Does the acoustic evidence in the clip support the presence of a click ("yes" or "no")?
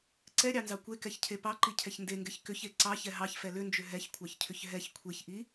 yes